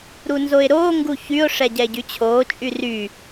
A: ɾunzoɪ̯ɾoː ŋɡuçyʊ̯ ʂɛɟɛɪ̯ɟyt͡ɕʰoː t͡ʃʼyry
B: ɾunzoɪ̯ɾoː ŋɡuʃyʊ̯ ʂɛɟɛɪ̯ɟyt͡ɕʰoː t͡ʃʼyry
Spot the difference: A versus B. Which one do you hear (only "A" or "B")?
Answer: A